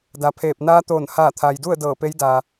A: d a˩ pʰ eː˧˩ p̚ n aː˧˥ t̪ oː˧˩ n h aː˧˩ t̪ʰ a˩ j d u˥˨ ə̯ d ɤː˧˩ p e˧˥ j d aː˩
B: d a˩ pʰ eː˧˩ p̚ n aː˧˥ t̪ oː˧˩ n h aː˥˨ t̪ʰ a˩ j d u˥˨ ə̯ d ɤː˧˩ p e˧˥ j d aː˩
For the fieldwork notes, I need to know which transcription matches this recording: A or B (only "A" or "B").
A